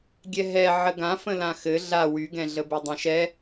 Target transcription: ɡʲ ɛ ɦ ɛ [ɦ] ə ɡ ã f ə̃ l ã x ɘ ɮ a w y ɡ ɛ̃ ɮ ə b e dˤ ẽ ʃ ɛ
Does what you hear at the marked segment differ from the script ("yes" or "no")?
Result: yes